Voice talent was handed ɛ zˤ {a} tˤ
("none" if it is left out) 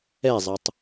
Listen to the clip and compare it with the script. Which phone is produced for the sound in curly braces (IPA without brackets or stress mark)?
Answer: ɐ